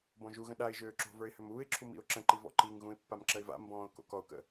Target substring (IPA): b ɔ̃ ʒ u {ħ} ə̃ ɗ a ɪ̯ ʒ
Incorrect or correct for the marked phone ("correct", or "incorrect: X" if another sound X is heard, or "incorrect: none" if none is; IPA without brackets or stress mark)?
incorrect: ɣ